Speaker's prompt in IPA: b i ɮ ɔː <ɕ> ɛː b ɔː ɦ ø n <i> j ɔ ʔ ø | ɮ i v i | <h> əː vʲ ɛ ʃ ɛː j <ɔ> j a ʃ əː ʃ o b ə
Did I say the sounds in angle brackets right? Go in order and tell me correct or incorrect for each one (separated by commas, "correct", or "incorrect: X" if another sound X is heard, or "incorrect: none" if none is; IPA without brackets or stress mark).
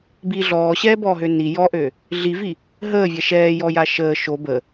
correct, correct, incorrect: ɦ, correct